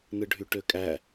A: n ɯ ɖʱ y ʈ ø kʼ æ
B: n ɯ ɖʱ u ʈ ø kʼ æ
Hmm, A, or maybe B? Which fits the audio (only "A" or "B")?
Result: A